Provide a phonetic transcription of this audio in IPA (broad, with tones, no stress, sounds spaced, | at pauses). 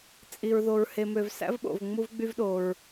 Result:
t͡sʼ i˩ ɹ ð o˩ ɹ h e˩ m ø˩ v s æ̰˥ v ɓ o̰˩ v ŋ͡m u˧ v ɡ͡b y˧ v ɗ o˩ ɹ